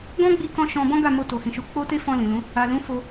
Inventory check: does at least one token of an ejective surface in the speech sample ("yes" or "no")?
no